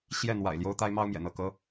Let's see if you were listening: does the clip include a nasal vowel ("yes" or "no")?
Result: no